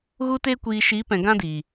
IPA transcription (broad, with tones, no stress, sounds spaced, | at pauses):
ɣ u˧ t e˧ kʷ iː˨ ʃ i˨˦ p ɛ̃˨ ɡ ã˦ d iː˨